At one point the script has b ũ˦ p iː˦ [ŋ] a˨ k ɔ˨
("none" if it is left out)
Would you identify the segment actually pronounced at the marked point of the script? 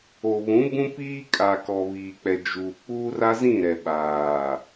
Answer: kʼ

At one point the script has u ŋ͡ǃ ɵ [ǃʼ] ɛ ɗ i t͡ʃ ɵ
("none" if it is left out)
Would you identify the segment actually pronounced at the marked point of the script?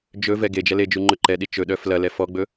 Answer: ǃ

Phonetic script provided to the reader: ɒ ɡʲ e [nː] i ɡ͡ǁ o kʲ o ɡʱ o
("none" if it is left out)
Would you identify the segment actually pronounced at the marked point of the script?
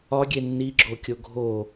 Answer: nː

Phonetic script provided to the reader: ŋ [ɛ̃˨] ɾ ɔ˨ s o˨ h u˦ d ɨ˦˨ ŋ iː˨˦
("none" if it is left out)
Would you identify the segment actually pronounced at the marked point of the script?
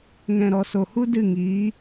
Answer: ɛ̃˨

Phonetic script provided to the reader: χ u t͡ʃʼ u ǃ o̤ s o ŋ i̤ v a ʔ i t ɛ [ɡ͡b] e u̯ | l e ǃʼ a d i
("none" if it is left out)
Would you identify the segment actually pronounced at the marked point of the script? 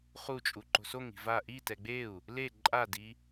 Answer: ɡ͡b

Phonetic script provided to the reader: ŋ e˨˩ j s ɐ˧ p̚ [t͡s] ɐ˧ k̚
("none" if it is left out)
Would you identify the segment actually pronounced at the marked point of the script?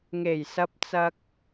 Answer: t͡s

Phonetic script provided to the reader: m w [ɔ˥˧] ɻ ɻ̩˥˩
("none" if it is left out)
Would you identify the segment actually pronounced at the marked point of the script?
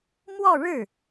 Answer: ɔ˥˧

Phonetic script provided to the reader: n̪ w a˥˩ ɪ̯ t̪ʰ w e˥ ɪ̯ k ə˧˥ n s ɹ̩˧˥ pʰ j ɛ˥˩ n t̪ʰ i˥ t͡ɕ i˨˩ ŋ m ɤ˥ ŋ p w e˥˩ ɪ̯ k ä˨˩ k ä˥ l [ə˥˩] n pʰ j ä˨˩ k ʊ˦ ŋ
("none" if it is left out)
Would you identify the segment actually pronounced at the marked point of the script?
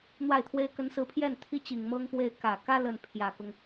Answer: ə˥˩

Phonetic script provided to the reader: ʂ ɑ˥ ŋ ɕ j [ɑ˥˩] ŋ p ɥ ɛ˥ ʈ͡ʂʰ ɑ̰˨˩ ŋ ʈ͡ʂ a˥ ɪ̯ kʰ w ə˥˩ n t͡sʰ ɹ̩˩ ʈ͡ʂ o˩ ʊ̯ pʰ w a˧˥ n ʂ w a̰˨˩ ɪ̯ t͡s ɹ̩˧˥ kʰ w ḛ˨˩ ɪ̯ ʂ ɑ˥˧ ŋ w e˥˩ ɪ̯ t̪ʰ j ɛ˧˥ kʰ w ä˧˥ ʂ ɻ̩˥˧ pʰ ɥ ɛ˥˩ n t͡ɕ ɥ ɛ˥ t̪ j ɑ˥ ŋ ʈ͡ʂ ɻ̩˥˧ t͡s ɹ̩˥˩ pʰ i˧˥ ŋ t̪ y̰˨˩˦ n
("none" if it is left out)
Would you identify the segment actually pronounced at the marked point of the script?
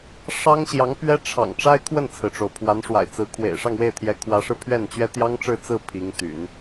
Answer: ɑ˧˥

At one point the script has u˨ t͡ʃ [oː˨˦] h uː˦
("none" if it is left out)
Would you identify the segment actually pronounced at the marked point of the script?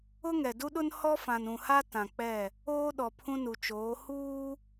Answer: oː˨˦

